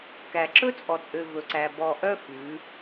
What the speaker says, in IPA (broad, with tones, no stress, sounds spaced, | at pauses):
k æ˨ ǁ ɵ˦ t͡sʼ ɔ˨ t͡sʼ ø˨ v ɵ˨ ǀ æ˨ b ɔ˨ ʔ œ˦ f ʉ˨˦